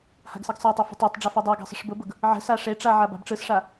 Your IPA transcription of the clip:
ha̤ɡsɯɡsˤatˤe fə̤tˤatˤɖ͡ʐa fedˤaɡa̤ sˤə̤ʂbʊbʊɡ | ʕə̤sa ʂeʈ͡ʂa ʕaba̤bʈ͡ʂɯsʂa

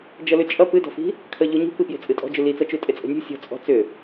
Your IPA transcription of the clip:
d͡ʒʌlʏt͡ʃʼʌ pɨdɔ̤fi̤ | kʰəʎuɲṳ pɨpje̤t͡sʼɨtʼɔ̤ d͡ʒʏlit͡sʌ t͡ʃutʼet͡sʼə̤nʲṳ sʲɔ̤t͡sʼɔ̤ t͡sʏ

